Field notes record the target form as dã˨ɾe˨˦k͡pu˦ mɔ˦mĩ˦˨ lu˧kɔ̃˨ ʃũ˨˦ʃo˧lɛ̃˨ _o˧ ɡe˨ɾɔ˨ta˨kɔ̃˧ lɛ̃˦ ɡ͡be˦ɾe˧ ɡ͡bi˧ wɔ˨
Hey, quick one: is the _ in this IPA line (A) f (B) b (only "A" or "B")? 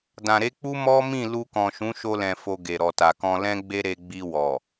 A